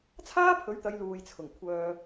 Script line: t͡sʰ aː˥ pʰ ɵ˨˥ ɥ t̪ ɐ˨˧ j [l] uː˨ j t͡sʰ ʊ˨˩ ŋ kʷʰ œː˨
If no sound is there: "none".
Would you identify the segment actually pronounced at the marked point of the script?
l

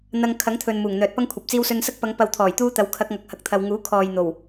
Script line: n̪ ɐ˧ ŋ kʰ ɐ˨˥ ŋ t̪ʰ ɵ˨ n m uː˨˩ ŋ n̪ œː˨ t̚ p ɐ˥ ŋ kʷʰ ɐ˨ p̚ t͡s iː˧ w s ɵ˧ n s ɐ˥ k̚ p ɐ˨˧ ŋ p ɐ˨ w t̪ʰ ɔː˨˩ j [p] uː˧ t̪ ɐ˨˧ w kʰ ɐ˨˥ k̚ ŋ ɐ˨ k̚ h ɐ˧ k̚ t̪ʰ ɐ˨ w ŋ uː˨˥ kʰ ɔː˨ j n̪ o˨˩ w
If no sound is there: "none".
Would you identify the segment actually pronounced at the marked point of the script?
t̪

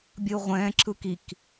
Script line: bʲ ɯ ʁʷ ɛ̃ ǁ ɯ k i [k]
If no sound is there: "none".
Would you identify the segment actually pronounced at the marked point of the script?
k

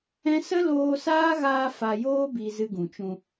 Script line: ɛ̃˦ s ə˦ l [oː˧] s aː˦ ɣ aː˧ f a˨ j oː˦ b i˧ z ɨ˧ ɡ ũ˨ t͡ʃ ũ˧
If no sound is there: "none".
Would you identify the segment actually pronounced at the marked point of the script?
oː˧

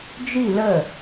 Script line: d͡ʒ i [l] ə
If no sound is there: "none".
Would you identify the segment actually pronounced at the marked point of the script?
l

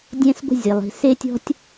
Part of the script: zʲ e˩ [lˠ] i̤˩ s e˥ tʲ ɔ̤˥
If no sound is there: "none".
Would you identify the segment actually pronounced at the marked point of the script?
lˠ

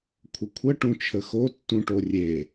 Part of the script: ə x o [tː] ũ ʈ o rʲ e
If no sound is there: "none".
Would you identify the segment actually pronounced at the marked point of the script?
tː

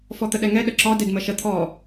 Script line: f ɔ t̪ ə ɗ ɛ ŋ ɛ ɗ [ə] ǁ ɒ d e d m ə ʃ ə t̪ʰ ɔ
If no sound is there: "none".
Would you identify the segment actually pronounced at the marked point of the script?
ə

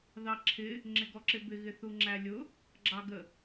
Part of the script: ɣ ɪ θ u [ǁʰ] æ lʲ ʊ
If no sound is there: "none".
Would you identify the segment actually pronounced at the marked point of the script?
ŋ͡ǁ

